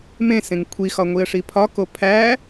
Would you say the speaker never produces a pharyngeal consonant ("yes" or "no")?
yes